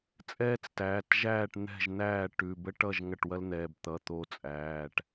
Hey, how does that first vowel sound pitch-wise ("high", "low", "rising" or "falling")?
high